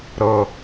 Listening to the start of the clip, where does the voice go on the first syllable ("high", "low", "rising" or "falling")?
high